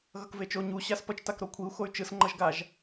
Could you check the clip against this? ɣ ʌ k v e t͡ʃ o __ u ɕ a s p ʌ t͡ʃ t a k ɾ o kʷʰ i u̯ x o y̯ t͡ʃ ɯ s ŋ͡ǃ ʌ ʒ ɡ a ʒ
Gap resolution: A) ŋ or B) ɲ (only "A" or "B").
B